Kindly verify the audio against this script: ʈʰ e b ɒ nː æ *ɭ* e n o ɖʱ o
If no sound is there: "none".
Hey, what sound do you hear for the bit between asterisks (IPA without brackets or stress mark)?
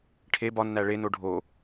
ɭ